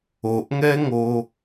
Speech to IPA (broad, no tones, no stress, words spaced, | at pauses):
oʔŋɛŋo